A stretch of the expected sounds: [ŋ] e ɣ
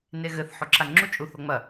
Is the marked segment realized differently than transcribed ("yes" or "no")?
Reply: yes